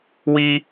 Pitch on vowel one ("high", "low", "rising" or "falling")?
high